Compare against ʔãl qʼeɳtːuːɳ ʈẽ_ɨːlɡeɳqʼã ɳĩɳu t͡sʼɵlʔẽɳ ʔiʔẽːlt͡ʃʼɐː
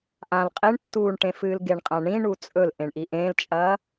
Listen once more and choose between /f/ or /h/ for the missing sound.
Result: f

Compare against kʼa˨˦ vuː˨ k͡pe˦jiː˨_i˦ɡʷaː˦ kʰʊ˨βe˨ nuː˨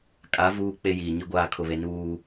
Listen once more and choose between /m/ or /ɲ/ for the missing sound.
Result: ɲ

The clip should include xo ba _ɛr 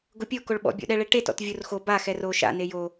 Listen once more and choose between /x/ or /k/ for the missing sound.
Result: x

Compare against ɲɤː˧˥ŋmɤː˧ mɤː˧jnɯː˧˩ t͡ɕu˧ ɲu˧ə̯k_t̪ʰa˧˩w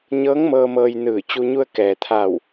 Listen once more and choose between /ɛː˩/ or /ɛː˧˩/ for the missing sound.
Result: ɛː˩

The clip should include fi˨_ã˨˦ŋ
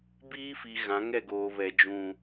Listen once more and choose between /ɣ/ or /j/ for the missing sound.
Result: ɣ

